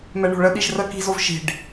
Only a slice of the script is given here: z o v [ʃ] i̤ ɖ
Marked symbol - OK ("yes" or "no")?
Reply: yes